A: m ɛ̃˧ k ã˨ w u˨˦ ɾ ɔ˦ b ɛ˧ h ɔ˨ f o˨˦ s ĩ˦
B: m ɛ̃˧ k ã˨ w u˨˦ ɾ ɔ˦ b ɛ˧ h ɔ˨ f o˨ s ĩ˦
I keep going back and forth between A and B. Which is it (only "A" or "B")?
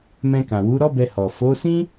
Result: A